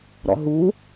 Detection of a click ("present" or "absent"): absent